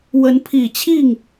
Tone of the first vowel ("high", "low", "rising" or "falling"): rising